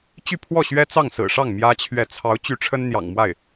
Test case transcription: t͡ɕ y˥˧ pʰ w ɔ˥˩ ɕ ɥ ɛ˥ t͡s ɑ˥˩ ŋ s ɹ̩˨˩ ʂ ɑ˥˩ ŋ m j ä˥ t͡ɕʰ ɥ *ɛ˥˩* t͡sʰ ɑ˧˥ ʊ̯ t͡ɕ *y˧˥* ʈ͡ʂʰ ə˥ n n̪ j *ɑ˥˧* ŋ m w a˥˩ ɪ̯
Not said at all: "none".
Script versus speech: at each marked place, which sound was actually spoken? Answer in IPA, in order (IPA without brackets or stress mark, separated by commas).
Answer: ɛ˥˩, y˧˥, ɑ̰˨˩